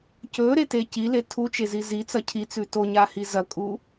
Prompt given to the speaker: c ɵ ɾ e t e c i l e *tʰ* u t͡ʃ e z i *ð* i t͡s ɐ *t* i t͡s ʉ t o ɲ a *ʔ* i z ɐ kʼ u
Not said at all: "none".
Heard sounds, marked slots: tʰ, z, cʰ, h

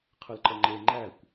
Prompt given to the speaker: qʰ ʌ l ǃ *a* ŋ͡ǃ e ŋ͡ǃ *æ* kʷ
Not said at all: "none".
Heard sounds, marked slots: ʌ, æ

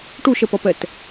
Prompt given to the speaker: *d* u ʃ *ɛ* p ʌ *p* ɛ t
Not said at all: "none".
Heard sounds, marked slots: ʈ, ɛ, p

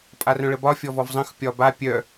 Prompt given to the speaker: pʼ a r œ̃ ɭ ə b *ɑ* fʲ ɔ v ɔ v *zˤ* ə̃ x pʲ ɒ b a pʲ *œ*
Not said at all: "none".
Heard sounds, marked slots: ɒ, zˤ, œ

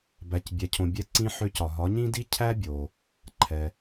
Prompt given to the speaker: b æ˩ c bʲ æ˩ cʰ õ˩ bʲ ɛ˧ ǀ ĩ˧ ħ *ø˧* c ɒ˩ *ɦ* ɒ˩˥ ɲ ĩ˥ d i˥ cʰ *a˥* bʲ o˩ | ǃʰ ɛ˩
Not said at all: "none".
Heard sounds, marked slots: ø˧, ɦ, æ˥

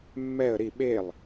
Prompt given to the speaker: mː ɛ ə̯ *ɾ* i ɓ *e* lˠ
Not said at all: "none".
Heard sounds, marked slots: ɾ, e

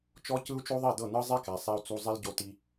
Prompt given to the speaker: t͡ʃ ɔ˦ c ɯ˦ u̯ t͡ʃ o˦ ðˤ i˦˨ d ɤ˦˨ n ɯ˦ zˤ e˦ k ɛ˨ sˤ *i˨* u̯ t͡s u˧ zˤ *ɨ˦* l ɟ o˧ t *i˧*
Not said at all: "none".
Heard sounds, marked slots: i˧, i˦, i˧

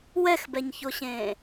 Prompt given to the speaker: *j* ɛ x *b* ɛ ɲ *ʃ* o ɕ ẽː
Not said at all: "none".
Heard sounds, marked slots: w, b, ç

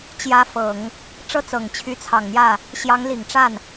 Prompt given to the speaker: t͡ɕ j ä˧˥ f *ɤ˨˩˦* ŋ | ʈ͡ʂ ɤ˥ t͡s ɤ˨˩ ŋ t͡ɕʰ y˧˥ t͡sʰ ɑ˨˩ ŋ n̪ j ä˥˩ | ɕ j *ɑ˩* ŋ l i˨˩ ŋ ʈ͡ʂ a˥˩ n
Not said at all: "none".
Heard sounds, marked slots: ɤ˨˩˦, ɑ˧˥

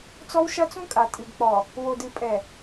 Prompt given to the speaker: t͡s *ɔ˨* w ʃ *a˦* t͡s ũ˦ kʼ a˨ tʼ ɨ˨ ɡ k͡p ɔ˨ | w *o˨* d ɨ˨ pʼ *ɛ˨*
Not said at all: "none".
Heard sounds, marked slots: ɔ˦, ɐ˦, o˨, ɛ˨

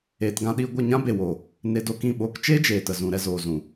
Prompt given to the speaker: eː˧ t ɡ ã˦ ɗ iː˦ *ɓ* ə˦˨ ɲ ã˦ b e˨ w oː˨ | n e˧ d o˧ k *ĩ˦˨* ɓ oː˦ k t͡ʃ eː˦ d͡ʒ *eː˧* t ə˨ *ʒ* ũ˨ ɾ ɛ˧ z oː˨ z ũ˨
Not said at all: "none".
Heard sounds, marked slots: ɡʷ, ĩ˦˨, eː˨, z

